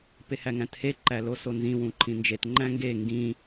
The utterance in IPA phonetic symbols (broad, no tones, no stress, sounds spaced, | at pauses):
p e h æ ŋ æ̃ t h e ǃ æ l o s o n z ĩ w ũ ǃʰ ĩ n d͡ʒ e t ŋ͡ǃ æ̃ ŋ ɡ e ŋ ɡ ĩ